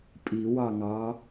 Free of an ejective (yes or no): no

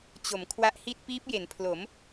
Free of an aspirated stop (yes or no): no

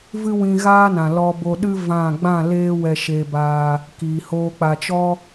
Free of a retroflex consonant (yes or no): yes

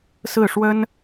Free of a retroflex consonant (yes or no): no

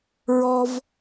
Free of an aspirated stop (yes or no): yes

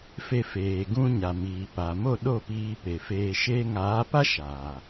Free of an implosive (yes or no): no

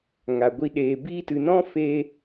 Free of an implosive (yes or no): no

